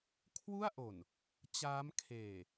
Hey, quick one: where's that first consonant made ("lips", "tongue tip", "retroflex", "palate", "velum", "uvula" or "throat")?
velum